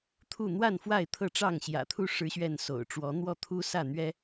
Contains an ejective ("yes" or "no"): no